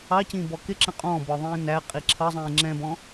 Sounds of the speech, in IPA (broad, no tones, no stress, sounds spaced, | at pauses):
ɑ c ĩː b ɔ k ɪ ǁ ə̃ qʼ ɔ̃ b ɔ ðˤ ĩː n æ qʼ i ǁʰ ʌ zˤ ĩː ŋ͡ǁ ɛ̃ b ɔ̃